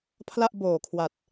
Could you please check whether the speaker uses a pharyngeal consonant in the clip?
no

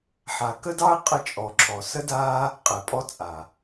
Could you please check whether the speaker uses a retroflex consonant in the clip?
no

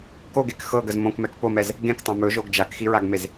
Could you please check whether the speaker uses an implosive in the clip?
no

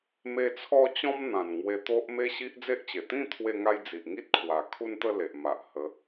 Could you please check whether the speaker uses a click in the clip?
no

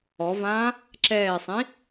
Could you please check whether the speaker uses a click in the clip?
yes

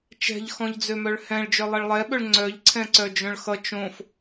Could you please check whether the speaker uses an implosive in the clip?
yes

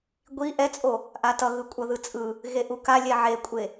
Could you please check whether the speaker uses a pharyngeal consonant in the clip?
yes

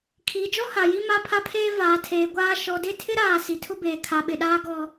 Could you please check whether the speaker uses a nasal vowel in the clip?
no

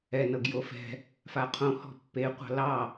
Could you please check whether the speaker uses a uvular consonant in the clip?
yes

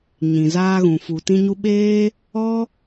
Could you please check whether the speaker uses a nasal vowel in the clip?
yes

